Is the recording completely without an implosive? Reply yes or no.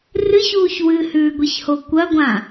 yes